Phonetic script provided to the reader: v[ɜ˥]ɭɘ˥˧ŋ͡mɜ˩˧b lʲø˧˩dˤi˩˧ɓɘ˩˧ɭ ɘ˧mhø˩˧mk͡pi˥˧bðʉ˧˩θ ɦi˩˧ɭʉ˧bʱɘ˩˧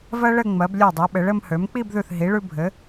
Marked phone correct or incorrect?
correct